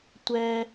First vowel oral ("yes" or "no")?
yes